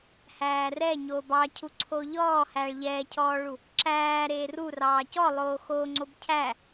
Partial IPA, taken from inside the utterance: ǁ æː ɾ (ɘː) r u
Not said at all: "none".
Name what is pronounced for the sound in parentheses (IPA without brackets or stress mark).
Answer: eː